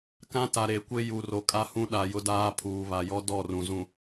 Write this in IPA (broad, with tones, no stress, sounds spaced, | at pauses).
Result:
k ã˦ t a˨ ɾ e˨˦ kʷ e˦ j u˨ r o˨ kʼ a˦ h ũ˦ ɗ a˨ j ʊ˦ d aː˦ pʰ uː˨ β a˨ j ɔ˦ d ɔ˦˨ r ũ˨ z ũ˨